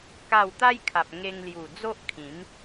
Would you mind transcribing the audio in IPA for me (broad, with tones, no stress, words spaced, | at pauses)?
ka˥˧w t̪a˦jkʰa˨p̚ ŋe˧ŋlju˨˩ d͡zo˦ʔkʰĩ˨˦m